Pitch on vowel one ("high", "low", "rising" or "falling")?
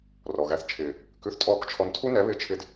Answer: low